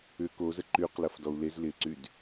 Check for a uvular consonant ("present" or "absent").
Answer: present